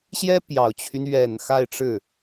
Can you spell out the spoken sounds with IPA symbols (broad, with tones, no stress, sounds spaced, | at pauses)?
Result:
ɕ j ɛ˥ p j ɑ˨˩ ʊ̯ t͡ɕʰ y˦ n ɥ ɛ˨˩ n x a˥˧ ɪ̯ ʈ͡ʂ ɻ̩˥˩